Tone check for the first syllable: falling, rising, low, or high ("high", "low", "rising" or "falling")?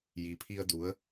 low